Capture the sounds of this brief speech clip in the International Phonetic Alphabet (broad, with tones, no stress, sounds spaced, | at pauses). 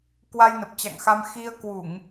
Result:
k w a˧ j n ə˨˩ p̚ t͡ɕ a̰˧˨ ŋ x a˧ m x i˧ ə̯ k w u˧˩˨ ŋ